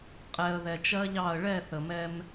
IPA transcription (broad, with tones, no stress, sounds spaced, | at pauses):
qʼ ɛ˨ ə̯ ð ɛ˨ t͡ʃ ɜ˦ ʎ ɑ˦˨ ə̯ ɭ ɛ˦˨ θ ə˨ m ɛ˦ m